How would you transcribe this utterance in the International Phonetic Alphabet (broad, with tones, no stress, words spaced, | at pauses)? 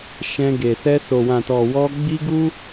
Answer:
ʃɛ̃˧ɡe˨ sɛ˧so˨wã˨ tɔ˨wɔ˧ ɡ͡bi˦ɡu˦